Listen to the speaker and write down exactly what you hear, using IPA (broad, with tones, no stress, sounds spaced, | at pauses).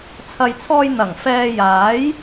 t͡sʰ ɐ˨ j t͡sʰ ɔː˧ j n̪ ɐ˨˩ ŋ f ɛː˧ j aː˨˥ j